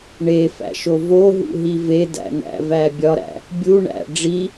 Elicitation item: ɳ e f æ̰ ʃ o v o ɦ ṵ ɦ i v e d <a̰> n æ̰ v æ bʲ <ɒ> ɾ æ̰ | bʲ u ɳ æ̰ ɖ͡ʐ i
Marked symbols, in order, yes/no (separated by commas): no, yes